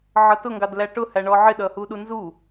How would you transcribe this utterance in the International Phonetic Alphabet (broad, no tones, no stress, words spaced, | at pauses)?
ʕʌtʊŋɡɑd læʈʊ hæɳɔʕɪ ɗʌhuɗunzu